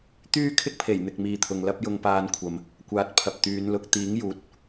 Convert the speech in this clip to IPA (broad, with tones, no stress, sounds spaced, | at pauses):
t̪ yː˥ kʰ ɪ˥ k̚ pʰ e˨˩ j n̪ ɪ˨ k̚ m iː˨ t̪ʰ ʊ˨ ŋ l ɐ˥ p̚ j ʊ˧ ŋ p aː˧ n kʷʰ ɐ˨ m | kʷ aː˨˥ t̚ pʰ ɐ˨ p̚ t̪ yː˨˧ n l ʊ˧ k̚ t̪ iː˨˥ ŋ j uː˨˥ t̚